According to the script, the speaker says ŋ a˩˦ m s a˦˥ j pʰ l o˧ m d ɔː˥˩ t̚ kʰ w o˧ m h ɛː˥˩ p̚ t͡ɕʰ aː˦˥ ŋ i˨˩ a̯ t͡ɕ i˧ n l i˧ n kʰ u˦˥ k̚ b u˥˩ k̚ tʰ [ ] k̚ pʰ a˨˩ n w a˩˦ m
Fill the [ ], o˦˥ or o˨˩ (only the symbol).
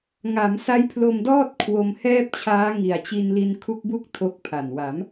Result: o˦˥